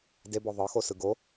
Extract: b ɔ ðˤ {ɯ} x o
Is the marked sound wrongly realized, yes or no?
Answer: yes